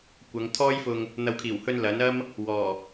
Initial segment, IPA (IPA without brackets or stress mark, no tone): kʷ